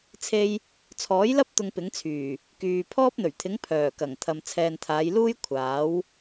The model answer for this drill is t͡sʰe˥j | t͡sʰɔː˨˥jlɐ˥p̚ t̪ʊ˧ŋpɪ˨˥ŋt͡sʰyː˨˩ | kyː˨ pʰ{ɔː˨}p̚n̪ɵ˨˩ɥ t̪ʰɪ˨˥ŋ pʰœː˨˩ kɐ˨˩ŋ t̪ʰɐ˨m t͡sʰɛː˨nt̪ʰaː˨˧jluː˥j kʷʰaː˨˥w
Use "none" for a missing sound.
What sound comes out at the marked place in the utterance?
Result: ɔː˥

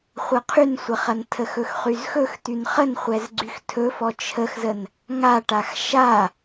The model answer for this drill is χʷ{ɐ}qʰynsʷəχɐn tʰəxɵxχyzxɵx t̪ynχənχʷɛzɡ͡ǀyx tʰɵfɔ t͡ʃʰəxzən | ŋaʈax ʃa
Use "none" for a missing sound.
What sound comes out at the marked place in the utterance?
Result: ɐ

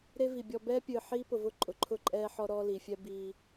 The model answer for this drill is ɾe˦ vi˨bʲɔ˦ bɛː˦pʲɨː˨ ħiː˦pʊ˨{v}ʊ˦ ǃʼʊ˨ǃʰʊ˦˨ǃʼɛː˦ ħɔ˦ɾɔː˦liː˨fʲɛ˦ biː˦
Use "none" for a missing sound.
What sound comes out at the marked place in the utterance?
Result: v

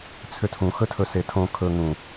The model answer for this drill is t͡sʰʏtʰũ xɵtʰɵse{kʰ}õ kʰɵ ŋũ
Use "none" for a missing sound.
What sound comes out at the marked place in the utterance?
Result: tʰ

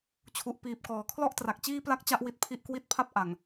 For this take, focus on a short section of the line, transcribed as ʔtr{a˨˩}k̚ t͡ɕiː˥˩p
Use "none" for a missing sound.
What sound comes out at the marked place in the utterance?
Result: a˨˩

